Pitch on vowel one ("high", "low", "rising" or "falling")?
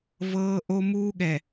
high